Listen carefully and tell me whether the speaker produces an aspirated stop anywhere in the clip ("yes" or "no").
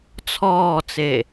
yes